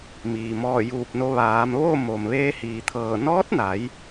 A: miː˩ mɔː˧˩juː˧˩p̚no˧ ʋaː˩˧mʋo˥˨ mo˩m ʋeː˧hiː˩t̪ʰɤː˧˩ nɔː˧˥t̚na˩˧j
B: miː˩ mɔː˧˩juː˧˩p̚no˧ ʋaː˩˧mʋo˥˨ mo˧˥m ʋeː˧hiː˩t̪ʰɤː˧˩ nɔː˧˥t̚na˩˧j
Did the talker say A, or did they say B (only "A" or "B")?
A